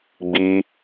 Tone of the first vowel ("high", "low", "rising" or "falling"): high